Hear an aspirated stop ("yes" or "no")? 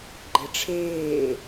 yes